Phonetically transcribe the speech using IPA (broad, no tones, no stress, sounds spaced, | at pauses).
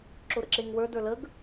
ǁ ʊ ɾ ə̰ ǁ e ŋ w ə˞ d ə˞ l ə ɡ